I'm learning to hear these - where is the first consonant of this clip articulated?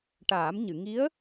retroflex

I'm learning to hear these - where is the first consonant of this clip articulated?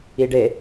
retroflex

